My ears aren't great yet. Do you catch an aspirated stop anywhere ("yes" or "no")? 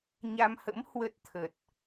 yes